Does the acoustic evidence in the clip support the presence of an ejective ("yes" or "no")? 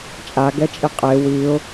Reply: yes